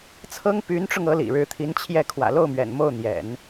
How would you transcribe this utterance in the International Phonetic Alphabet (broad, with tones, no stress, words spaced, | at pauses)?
t͡sʰɤ˥ŋ py˧˥nʈ͡ʂʊ˧ŋ ɤ˧˥lḭ˨˩ɻɻ̩˧˥t̪ʰi˧˥n t͡ɕʰjɛ˥˩ kʰwä̰˨˩lo˥˩ʊ̯mɥɛ̰˨˩n mo˥˩ʊ̯n̪jɛ̰˨˩˦n